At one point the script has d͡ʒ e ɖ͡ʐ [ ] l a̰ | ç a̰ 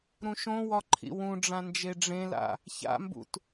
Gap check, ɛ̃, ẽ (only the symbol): ẽ